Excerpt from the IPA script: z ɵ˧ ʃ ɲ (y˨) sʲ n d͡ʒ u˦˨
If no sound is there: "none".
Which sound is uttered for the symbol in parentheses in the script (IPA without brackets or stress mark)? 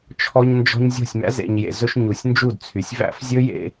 u˨